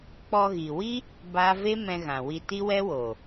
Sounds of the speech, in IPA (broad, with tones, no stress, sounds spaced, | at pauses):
k͡p ɔ˧ ɣ i˨ w i˦ | b a˦ v e˦ m ɛ̃˧ ɣ ã˨ w i˧ t i˦ w ɛ˦ w oː˨